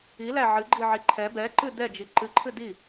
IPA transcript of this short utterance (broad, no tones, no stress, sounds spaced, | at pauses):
i l æ ʕ ɨ ɡ͡ǃ i ʕ i ǃʰ ɛ b ɛ ǃ ɨ d ɛ d͡ʒ i ǃ ɨ ǃʰ ɨ d i